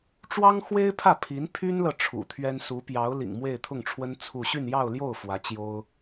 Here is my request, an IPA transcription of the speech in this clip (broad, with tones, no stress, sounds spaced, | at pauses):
ʈ͡ʂ w ɑ˥ ŋ x w e˥ ɪ̯ pʰ ä˥˩ pʰ i˧˥ n pʰ y˥ n l ɤ˨ ʈ͡ʂʰ ṵ˨˩ t̪ʰ ɥ ɛ˥ n s u˧˥ p j ɑ˧˥ ʊ̯ l ḭ˨˩ ŋ m w e˥˧ ɪ̯ t̪ʰ ʊ˥˩ ŋ ʈ͡ʂʰ w ə˥ n t͡sʰ u˥˧ ɕ y˥˧ n j ɑ˥˧ ʊ̯ l j o˥˩ ʊ̯ f w ä˧˥ t͡ɕ j o˥ ʊ̯